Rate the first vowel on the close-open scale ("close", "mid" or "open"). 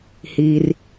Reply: close